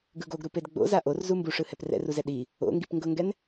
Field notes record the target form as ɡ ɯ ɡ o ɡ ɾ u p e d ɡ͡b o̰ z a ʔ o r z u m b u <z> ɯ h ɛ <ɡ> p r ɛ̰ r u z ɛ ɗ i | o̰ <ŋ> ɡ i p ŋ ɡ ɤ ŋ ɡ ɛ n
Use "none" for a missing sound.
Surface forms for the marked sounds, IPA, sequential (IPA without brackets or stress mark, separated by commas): ʂ, none, ŋ